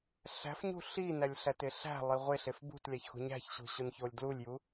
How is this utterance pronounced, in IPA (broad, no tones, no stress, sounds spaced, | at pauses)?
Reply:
ɬ æ̤ f ɲ ṳ ɬ i n æ lʲ ɬ æ t e ɬ æ̤ lˠ i ʁʷ e ɬ e f b ṳ t lʲ æ ç x ṳ ɲ æ̤ ç ɕ ṳ ɕ o n ç o lʲ d l u lʲ j u